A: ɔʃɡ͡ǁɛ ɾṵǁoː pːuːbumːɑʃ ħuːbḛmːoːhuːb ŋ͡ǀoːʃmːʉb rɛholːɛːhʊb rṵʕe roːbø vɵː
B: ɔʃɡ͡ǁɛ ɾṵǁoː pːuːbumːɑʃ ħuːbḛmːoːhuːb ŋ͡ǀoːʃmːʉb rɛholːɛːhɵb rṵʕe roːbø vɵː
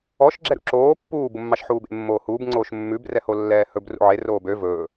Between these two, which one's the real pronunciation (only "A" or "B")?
B